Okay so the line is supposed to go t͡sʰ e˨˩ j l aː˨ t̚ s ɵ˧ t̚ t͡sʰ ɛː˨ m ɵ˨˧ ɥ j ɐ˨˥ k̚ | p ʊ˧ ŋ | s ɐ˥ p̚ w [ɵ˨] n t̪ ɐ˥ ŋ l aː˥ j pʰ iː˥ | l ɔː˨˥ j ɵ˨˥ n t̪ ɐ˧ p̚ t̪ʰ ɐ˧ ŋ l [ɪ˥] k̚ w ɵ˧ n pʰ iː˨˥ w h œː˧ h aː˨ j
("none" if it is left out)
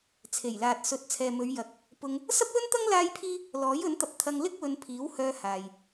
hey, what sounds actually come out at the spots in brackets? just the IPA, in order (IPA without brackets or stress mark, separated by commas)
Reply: ɵ˥, ɪ˥